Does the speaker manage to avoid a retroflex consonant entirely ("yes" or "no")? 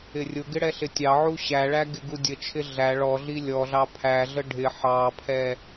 no